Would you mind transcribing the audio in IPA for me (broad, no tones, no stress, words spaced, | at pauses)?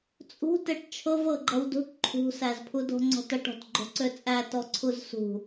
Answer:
t͡sʼṳ teʈt͡ʃʰɤv ɤɡ͡ǃʌwdṳʈ ǃʰṳsæzpʰudo̤ ŋ͡ǀɔ̤tʌʈɔ̤t ɡ͡ǃo̤ǀøt͡sʼæ tɔǀʰuzsṳ